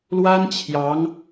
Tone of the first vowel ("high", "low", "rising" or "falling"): high